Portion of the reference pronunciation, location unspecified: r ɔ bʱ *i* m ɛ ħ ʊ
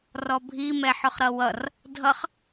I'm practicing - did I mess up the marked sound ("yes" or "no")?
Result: no